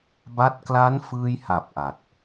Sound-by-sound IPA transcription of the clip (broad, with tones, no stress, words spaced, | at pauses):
ba˥˩t̚ kla˦˥nfɯː˧jha˨˩p̚ ʔa˨˩t̚